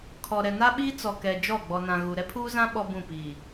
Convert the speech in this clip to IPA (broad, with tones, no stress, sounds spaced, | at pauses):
kʰ ɔ˨ ɾ ɛ˨ n a˦ ɓ iː˦ t͡s ɔ˨ k ɛ˨ d͡ʒ ɔ˦˨ ɡ͡b ɔ˨ n ã˨ ɣ u˨ ɾ ɛ˦ pʰ uː˦ z ã˦ ɓ ɔ˦ b ũ˦˨ p iː˨